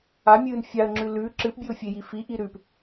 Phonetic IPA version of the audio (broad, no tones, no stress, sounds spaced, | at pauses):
a mʲ ɨː n fʲ a ə̯ ŋ͡ǁ ʉ l ʉ ǁ ɨ p bʲ ɨ ʊ̯ fʲ e j i f i ʔ i ɾ ʉ p